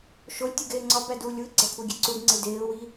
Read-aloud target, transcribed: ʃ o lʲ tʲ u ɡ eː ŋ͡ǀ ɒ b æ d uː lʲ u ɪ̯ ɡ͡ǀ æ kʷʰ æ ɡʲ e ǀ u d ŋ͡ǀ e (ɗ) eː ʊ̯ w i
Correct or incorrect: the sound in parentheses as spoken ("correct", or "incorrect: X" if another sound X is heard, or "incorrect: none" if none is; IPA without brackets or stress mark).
incorrect: d